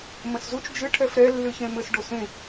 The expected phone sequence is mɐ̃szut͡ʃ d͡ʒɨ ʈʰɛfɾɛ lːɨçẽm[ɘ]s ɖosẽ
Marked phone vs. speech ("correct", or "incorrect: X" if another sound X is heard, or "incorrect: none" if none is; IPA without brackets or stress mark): correct